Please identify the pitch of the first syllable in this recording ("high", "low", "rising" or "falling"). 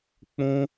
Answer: high